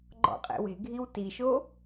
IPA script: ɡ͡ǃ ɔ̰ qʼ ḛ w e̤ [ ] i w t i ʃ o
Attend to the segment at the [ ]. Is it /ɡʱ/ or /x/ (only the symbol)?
ɡʱ